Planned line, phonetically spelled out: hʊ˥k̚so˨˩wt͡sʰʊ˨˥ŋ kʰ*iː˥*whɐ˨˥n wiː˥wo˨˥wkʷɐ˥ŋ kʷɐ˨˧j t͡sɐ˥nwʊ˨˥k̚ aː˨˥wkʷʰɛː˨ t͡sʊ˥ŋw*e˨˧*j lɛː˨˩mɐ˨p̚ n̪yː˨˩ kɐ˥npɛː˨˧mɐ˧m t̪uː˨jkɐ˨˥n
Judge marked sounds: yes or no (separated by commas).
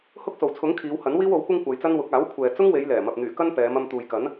no, yes